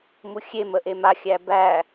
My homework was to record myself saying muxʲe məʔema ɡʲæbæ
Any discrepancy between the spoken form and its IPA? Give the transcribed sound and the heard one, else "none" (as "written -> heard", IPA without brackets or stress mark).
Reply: ɡʲ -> xʲ